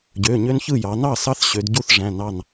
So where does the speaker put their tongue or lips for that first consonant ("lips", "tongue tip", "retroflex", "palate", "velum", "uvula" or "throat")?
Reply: palate